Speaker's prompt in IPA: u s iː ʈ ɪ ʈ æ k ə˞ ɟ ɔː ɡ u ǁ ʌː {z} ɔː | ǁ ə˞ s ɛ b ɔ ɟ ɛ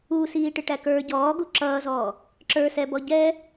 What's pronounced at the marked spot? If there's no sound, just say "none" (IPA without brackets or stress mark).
z